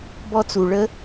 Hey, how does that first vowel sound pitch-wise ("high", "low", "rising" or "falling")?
high